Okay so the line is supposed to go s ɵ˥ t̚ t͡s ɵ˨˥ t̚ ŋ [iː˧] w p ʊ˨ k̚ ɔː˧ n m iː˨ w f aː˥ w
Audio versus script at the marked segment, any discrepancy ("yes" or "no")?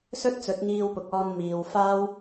no